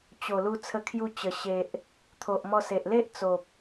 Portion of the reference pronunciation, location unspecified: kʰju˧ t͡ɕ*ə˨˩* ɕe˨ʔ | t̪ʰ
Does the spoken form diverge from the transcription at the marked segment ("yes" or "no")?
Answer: no